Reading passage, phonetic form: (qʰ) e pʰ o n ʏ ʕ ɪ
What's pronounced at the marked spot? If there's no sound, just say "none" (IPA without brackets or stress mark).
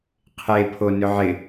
qʰ